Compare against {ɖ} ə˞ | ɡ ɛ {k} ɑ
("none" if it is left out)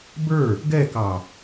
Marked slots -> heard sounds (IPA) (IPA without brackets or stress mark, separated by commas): b, k